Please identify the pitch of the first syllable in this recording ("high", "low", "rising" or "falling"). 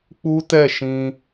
high